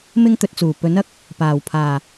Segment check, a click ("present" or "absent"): absent